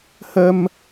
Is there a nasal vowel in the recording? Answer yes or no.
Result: no